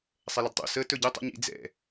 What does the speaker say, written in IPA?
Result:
sˤ ɛ l ə d tˤ ṵ s ə t ɵ ɟ e tˤ ṵ ɲ ḭ d͡z ɛ̰

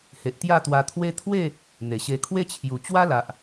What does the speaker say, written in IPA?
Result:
h e˨ ʔ t̪ j a˥˧ t̪ w a˧ t̪ʰ w e˦ t̪ʰ w e˥˧ | n̪ e˨˩ ɕ e˧ kʰ w e˦ t͡ɕʰ j u˨˩ t͡ɕ w a˦ l a˨ ʔ

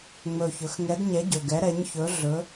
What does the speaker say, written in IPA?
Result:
ŋ͡m ɵ˨˩ ç ɵ˩˧ x ŋ ɛ˨˥ d ɲ ɛ˨˥ ɟ ɵ˨˩ ɡ ɛ˨˥ ɾ ɛ˨˥ ɲ ç ɵ˨˥ ɮ ɵ˨˥

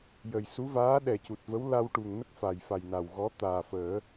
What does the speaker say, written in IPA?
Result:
j ə˨˩ j s u˧˥ v aː˧˥ ɗ ɛ˨˩ c u˨˩ t̚ v ə˧˥ w l a˧ w ʈ u˨˩ ŋ n ə˦˥ k̚ f a˨˩ j f a˨˩ j n a˨˩ w ɣ ɔ˧˥ t̪ aː˨˩ f əː˨˩˦

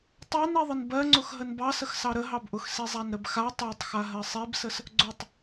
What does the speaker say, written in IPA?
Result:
tˤ a n i ðˤ ə n b ɜ ŋ͡ǀ ʊ x ɦ ə n b ɑ s ə x s ɑ ɾ ə ɦ ɑ b ʔ ʊ x s i zˤ a n ɾ ə b x a tˤ a tˤ x a ɦ ɜ sˤ i b s ə s | ɡ͡ǀ ʊ tˤ

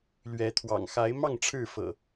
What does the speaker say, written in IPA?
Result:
l ɥ ɛ˨˦ t̪ʰ w ɑ̰˨˩ ŋ x a˨˦ ɪ̯ m ɑ˥˨ ŋ ʈ͡ʂʰ ɻ̩˥˨ f ɤ̰˨˩

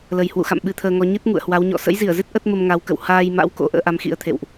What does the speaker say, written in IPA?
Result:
l ə˨˩ j h w ṵ˧˨ x a̰˧˨ m ɓ ɨ˧ t̪ʰ əː˧ ŋ ɔ˧ ɲ ɨ˦˥ t̚ ŋ ṵ˧˨ ə̯ h w a˨˦ w ɲ ɔ̰˧˨ s ə̰˧˥ j z i˧˩ ə̯ z ɨ˦˥ t̚ ʔ ə˦˥ t̚ m ə˧ m ŋ a˨˦ w k ə̰˧˨ w h aː˧ j m a̰˧˥ w k o̰˧˥ ʔ ə̰ː˧˥ ʔ a˨˦ m x ḭ˧˥ ə̯ t̪ʰ ḛ˧˨ w ʔ

